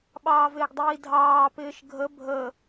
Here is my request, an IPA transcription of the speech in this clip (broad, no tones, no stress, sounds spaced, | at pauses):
ɓ ɑː v ɪː ɡ dˤ iː dʱ ɑː p ɪː ʃ ɡʱ ə bʱ ə